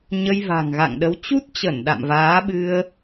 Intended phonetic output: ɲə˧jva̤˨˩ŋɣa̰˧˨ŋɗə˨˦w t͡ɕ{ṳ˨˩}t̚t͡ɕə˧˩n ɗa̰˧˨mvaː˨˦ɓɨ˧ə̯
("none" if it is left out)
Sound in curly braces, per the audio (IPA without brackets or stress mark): u˦˥